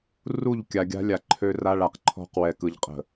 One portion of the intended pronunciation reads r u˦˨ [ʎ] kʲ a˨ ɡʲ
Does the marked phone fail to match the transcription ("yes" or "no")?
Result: no